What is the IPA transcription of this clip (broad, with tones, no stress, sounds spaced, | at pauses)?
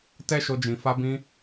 t ɛ˦ ʃ o˧ d͡ʒ ĩ˨ f a˧ b ĩ˧